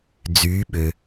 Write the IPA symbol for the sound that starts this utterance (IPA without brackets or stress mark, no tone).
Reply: d͡z